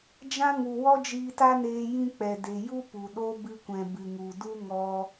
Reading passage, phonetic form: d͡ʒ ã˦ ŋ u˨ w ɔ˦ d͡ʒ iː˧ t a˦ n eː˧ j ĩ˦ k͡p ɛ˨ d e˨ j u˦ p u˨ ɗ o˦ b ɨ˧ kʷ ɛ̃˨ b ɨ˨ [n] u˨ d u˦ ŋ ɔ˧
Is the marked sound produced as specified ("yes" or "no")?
no